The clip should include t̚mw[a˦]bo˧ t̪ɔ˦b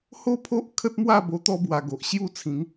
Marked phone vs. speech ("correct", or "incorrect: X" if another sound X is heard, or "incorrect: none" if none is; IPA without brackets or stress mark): incorrect: a˥˧